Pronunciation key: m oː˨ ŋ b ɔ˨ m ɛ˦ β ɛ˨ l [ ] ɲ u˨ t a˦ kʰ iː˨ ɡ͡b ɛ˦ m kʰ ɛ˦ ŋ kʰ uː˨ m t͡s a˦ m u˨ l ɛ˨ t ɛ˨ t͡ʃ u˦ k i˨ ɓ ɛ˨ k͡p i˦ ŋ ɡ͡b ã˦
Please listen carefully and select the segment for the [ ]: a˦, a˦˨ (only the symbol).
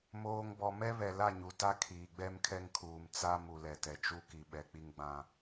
a˦˨